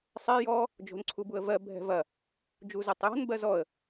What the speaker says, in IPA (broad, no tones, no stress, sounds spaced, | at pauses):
sˤ ɛ j ɔ | d͡ʒ o̤ n ǀʰ u b u ə̯ v ɜ bʱ ɛ̤ v ɐ | d͡ʒ u z ɛ tˤ j ɔ̤ n b ɜ z ɔ ə̯